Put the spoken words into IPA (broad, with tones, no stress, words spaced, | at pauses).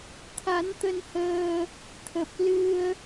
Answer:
t̪ʰa˨˦nt̪ə˧nhəː˧ | t̪ʰə˨˩p̚ lɨ˧ə̯